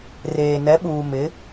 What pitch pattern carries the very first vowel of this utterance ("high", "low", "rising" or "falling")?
low